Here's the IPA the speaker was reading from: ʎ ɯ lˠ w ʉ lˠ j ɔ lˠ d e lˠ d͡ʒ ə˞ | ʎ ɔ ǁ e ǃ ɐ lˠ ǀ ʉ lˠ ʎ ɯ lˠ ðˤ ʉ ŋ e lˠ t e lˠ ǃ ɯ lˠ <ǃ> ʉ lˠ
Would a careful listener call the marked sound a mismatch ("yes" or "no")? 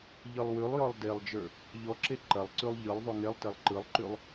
no